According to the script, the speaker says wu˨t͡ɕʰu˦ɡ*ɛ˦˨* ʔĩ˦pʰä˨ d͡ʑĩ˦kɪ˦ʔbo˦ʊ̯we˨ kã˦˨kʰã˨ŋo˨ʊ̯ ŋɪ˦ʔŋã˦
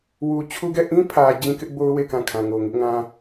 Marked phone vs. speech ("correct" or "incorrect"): correct